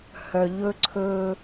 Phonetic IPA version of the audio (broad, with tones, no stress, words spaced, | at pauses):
hœ˨ʎɵ˦ǀʰɵː˦